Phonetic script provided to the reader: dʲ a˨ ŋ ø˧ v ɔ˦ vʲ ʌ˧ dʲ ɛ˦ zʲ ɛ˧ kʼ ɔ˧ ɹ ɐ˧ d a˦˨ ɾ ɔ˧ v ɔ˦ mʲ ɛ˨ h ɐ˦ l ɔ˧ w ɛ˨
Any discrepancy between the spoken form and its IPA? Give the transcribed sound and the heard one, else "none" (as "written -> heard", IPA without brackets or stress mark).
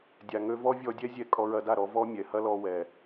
ʌ˧ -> ɔ˧